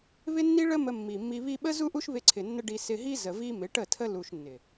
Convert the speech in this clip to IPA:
βɪ˦nːi˦ ɭə˦ mə˧mːi˨mːi˧ βi˧ɓə˦ zu˦ʔu˦ʃβɪ˧ǀʰɪ˨ nːə˦ɖi˧ sɪ˧ɦi˦ zə˨ vi˦ mɪ˨˦ʈə˦˨tʰə˦ lu˧ʃnːɪ˨

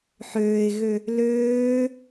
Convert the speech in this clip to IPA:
ħøːɪ̯ɣø | løː

